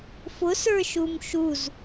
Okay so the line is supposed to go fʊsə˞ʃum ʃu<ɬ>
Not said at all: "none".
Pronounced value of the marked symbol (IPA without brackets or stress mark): z